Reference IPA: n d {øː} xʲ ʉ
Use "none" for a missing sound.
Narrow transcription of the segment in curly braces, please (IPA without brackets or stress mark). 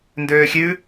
øː